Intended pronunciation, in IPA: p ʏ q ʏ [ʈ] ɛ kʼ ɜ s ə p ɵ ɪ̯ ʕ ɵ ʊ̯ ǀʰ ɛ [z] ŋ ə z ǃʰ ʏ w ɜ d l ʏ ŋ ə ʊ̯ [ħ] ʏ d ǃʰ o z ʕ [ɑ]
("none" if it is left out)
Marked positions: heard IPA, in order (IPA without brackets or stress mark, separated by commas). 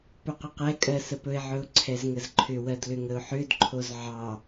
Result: q, z, ħ, ɑ